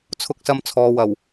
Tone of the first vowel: high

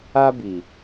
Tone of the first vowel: high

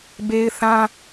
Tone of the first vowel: high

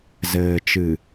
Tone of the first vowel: low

